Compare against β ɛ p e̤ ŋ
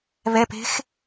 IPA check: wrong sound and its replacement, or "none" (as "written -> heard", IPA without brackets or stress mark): ŋ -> x